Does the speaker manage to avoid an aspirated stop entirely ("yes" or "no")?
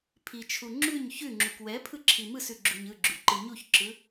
no